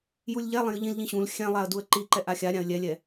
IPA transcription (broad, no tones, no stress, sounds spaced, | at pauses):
j u lʲ ʎ ɛ lˠ ẽ j ɯ ʎ ĩ l ʎ ĩ ɕ ũ l xʲ ɛ̃ lˠ a ə̯ d u ə̯ ǃ i ǃ ɛ ʔ a xʲ a ɾʲ ã ə̯ lʲ ɛ lʲ ɛ